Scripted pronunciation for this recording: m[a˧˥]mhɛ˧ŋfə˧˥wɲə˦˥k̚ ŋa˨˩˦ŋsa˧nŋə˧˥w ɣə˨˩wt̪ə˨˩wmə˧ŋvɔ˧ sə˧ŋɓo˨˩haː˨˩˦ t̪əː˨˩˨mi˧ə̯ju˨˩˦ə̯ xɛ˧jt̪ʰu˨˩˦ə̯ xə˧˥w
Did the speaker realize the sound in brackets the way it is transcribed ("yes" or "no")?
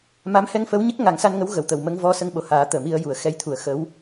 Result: yes